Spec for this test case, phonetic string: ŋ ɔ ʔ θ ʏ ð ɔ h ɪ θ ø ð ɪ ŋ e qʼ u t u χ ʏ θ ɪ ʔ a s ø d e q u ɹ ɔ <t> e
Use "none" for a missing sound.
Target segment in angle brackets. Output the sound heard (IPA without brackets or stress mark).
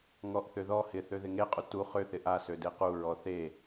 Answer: θ